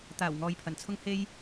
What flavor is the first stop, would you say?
plain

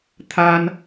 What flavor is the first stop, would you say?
aspirated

